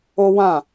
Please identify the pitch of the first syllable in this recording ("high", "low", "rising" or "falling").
high